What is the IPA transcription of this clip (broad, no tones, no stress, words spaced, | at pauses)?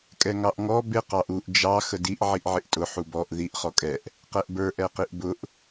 kʼɛŋɑʔŋɔ bɪ qɑʔuʔ d͡ʒɑ xədiʔ ʕiʔʕɪʔtʼʊ ħubɔʔ ðiʔ χɔkʼɛʔ | qɛʔbə˞ ʔɛqiʔbʊʔ